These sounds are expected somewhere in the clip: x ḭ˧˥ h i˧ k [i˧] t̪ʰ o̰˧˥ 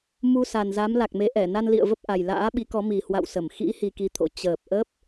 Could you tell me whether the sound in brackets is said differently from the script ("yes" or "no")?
no